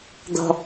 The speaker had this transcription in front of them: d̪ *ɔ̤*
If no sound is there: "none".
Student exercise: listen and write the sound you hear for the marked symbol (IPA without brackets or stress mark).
ɔ̤